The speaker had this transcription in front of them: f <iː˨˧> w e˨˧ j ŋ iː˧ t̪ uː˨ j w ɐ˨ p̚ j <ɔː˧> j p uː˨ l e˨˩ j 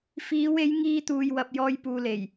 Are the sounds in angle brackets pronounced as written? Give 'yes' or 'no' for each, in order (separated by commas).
yes, yes